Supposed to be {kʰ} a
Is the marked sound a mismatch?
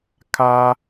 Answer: no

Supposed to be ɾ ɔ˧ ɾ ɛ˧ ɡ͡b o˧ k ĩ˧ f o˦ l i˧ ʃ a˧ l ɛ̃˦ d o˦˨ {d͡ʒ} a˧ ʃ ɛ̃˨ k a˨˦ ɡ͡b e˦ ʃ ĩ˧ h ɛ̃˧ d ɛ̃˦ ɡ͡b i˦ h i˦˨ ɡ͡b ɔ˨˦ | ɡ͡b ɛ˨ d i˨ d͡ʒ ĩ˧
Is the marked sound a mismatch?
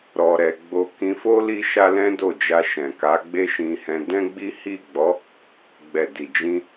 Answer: no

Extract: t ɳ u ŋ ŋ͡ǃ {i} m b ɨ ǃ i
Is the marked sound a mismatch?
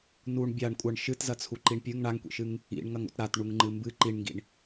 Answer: yes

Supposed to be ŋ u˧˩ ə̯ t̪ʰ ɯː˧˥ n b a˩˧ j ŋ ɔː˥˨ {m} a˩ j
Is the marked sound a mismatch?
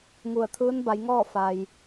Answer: yes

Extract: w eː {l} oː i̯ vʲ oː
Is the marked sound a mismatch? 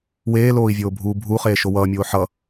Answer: no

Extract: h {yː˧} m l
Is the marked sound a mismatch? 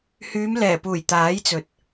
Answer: yes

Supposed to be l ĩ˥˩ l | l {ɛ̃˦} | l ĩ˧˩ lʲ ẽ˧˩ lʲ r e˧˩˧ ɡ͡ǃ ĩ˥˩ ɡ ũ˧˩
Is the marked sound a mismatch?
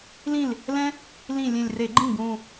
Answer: no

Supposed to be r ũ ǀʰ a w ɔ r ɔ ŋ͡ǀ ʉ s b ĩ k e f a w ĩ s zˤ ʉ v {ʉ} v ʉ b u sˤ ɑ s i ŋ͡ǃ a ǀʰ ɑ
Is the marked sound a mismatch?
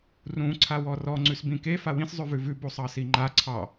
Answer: no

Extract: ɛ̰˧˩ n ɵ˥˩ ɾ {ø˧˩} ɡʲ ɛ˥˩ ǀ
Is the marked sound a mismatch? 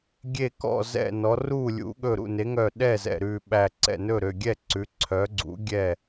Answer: no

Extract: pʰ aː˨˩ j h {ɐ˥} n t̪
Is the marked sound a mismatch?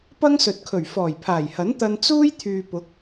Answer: yes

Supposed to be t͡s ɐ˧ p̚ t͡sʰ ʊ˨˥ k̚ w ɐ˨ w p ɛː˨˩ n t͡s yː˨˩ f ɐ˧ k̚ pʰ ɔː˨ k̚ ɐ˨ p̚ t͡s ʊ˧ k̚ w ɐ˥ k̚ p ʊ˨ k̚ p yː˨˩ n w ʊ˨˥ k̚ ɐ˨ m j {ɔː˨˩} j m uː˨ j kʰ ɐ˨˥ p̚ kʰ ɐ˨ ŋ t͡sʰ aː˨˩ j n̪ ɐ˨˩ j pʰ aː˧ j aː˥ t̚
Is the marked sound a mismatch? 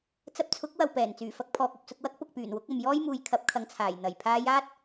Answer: yes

